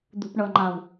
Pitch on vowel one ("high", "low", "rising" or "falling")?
low